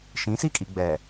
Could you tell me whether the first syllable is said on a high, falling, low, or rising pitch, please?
rising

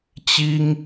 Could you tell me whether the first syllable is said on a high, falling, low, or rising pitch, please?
high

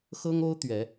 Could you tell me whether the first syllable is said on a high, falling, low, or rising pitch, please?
high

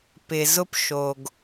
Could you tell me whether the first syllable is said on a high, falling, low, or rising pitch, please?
low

